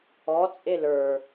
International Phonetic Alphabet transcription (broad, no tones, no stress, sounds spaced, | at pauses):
ɔ t͡sʼ e l ə˞